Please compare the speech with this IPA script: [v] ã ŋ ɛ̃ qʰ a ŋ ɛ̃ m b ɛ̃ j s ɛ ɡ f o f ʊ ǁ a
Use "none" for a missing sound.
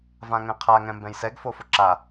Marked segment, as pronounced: v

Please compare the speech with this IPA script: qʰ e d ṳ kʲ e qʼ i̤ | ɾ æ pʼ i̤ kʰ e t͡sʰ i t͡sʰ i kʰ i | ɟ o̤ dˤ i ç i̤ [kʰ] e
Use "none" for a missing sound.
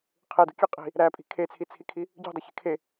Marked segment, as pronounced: kʰ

